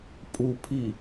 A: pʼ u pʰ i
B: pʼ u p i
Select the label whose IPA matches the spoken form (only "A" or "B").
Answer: A